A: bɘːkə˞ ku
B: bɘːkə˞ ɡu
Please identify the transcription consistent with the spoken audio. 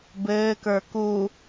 A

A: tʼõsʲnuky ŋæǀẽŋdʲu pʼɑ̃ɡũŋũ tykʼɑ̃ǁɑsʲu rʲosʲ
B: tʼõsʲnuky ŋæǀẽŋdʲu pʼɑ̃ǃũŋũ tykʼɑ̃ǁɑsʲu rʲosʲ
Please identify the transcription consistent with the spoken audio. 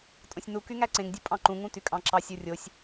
B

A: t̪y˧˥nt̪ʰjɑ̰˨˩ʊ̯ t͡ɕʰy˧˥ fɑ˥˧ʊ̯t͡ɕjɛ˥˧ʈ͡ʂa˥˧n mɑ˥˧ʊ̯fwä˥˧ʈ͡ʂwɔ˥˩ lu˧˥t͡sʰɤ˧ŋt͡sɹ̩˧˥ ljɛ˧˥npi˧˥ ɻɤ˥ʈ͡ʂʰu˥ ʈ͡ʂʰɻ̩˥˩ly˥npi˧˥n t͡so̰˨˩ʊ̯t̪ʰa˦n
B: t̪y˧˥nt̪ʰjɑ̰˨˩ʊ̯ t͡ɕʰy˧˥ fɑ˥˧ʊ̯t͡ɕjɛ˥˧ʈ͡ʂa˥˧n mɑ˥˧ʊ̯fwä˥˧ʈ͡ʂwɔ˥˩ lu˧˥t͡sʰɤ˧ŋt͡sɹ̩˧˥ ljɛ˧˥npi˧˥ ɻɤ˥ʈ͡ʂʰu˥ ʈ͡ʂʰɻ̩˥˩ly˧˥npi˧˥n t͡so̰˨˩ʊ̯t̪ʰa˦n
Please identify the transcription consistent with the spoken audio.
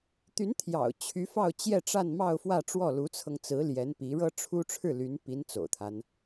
B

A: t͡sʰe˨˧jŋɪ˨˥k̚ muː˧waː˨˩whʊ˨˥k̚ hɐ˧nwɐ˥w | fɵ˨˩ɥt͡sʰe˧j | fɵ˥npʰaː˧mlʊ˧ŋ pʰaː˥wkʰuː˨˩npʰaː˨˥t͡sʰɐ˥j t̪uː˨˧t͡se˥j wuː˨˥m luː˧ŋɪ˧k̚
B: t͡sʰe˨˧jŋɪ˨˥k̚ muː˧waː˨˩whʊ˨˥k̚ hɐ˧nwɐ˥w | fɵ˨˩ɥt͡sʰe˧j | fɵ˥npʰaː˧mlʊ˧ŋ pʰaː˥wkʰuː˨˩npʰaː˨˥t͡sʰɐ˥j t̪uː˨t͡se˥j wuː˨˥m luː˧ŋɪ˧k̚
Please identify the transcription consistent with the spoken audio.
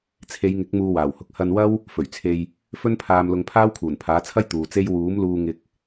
B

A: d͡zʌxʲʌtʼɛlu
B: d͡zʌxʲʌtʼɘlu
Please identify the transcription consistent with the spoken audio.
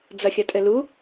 B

